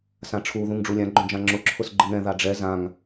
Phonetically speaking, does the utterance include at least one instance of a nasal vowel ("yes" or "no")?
yes